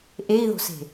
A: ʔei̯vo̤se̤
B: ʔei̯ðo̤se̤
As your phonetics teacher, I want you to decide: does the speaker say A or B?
B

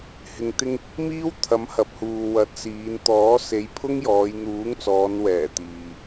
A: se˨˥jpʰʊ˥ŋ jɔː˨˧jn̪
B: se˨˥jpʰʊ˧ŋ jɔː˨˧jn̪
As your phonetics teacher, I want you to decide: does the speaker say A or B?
A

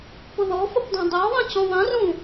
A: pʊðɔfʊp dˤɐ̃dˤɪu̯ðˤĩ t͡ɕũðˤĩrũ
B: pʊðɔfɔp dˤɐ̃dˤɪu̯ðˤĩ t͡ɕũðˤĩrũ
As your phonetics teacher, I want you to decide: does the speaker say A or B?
A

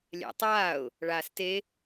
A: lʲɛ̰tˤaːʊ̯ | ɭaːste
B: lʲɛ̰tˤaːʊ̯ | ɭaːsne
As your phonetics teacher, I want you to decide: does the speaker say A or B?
A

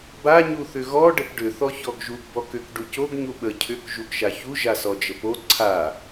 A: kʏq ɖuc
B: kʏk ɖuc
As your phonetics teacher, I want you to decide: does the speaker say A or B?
B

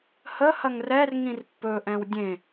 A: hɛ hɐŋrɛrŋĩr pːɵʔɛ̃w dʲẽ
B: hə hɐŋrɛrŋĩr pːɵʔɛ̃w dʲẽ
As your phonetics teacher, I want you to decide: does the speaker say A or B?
B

